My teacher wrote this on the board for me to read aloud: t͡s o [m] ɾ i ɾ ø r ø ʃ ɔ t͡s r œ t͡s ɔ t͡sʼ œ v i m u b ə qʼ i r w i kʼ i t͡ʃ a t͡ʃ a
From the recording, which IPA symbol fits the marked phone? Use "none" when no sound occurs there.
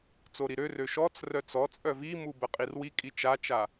none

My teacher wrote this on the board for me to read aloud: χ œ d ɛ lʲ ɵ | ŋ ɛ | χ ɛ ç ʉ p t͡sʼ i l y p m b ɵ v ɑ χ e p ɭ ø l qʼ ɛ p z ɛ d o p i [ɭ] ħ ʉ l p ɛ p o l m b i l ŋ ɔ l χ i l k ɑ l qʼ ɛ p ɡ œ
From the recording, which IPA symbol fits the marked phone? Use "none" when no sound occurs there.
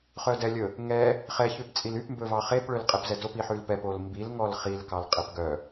none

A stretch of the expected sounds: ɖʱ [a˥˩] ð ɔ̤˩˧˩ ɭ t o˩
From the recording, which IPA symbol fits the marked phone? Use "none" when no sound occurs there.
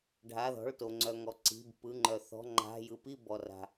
a˩˧˩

